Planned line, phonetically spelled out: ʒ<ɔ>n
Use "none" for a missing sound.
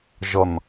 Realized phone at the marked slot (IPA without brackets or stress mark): ɔ